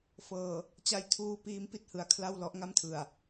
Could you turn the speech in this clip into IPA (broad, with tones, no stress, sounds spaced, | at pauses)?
f ɤː˨˩ | t͡ɕ a˧ j tʰ uː˧ p iː˦˥ m p i˥˩ t̚ h ɯ˩˦ a̯ kʰ l a˥˩ w l ɔ˦˥ ʔ ŋ a˥˩ m tʰ ɯ˨˩ a̯